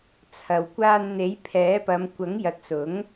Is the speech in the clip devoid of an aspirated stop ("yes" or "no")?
no